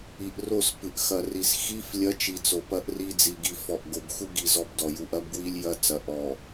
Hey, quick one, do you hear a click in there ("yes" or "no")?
no